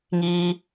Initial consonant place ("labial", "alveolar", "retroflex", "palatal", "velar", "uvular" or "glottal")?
velar